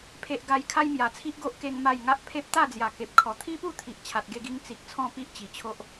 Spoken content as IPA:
pʰe˨ʔɡa˨˩j kʰa˦jmja˨˩t͡sʰi˦ʔɡo˦ʔ ke˦ŋma˥˧j ŋa˦ʔpʰe˦p̚ t̪a˥˧d͡zja˨˩ke˨p̚kʰɔ˨˩ t̪ʰi˦pu˥˧t̪ʰi˨ʔ t͡ɕʰa˨t̚ɡe˧ɡi˧ŋ t͡si˨k̚ t͡sʰɔ̃˥˧pi˦ʔt͡ɕi˨˩t͡ɕʰo˦ʔ

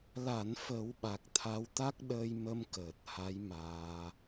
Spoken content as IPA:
la˨˩˨n fə˨˩˦wɓa˨˩k̚ t̪ʰa˧wt̪a˦˥k̚ ɗəː˧jmə˧m kəː˨˩t̚ha˧˥j maː˧

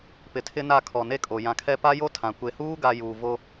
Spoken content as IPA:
pɪ˨tʰɪ˦na˦˨ kʰɔ˨ne˦kʼo˨ jã˨kʰɛ˦ pa˦jo˦ tʰã˨ kʷe˨huː˦ ɡa˦ juː˨ vo˦

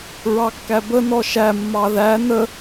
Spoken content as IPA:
ɹɑkːæbə nɔʃæ mːɑðæ nə

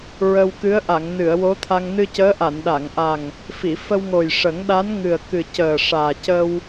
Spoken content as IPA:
ɹə˧wkɨ˧˥ə̯ ʔa˨˩˨ŋ nɨ˨˩˨ə̯ wo˧˥t̪ʰa˧ŋ nɨ˧cəː˧˥ʔa˨˩˨n ɗa˨˩˨ŋʔa˨˩ŋ | fi˨˩˨ fə˧wŋo˨˩jʂə˨˩˦ŋɗa˧˥n ŋɨ˨˩ə̯kɨ˨˩cəː˨˩ ʂaː˨˩ cə˧w

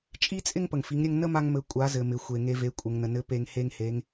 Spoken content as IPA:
t͡ʃʼi˥t͡sʼɪ˥ŋ pə˩ŋfi˩˧ŋɾʲɘ˧ŋ nə˥ma˧ŋmɘ˩˧ kʷʼa˩˧zɘ˩mɪ˩ xʷe˩ŋe˧ve˩˧ kʷʼɘ˩ŋnə˩nɘ˧˥ pe˧ŋhe˥ŋhe˧˥ŋ

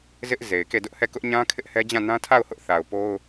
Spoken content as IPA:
zɪ˦ʔ ze˨ɪ̯ke˦˨dʊ˦ʔhɛ˦˨ kʊ˦ʔɲã˦ kʰɪ˦ʔhɛ˦d͡ʑã˦˨ nã˦tʰa˦˨ʊ̯hʊ˦ʔ θa˨ʊ̯po˦ʊ̯

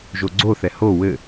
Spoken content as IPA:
ʒoɡ͡ǀoθɛ ho wɘ

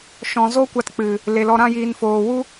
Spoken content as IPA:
ʃɔ̃˨zo˦kʷa˧tk͡pɨ˨ | le˨lɔ˧ɾã˦jiː˧n foː˨wu˦

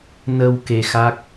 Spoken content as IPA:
nə˧w ke˧xa˦˥k̚

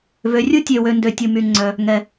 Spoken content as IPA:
vø˩rʲu˥ tʲø˩wø˩ ndø˩tʲu˩ my˩ ŋ͡ǀœ˩ | ŋɛ˩

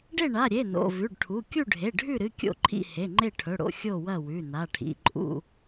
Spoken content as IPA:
ɖe˥˨ɳa˩˧˩ ɾʲe˩˧˩ no̰˩˧˩vʉ˩˧˩ɖʈʰu˩˧˩ kʲu˥˨ɖʱe˩˧˩ ɖʱʉ˥˨ɾɨ˩˧˩ kʲo̰˥˨ǃʰḭ˥˨ he˩˧˩ŋ͡ǃe˥˨ʈʰɵ˩˧˩ɽo̰˥˨ xʲo˥˨wɐ˥˨wʉ˩˧˩ na˩˧˩ʈʰḭ˩˧˩ǃʼṵ˥˨

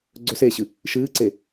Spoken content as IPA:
ɡ͡ǀɵseːɕɨ | ʃɨːǀe

